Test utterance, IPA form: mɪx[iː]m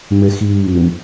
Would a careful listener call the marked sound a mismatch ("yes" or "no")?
no